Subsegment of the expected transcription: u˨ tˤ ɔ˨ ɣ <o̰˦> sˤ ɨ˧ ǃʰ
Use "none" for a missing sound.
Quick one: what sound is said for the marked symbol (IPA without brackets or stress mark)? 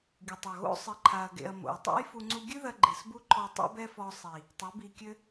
o̰˦